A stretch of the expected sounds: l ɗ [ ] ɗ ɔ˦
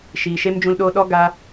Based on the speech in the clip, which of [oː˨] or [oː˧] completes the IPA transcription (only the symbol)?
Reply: oː˧